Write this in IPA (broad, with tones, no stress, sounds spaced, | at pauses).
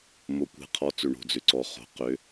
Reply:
m o˩˧ kʷ e̤˩˧ qʰ ɔ˩˧ t͡s ʏ˩ ɳ o̤˩ d͡z ʏ˩ ǀ ɔ˩ χ o̤˩˧ q ʏ˩˧